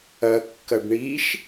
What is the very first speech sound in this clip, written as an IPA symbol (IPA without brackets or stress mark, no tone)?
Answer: ɐ